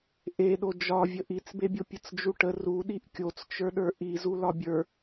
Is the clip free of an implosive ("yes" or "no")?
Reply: no